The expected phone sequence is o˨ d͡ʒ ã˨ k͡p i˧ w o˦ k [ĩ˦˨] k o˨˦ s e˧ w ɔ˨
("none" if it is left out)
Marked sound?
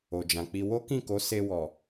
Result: ĩ˦˨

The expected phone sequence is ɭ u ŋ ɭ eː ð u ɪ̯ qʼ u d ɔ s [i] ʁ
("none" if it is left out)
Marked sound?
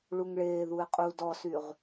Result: y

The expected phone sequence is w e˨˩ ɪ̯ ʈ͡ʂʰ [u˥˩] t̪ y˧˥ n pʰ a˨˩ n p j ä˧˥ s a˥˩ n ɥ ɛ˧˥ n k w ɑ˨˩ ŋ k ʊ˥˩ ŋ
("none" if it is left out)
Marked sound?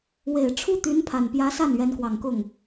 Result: u˥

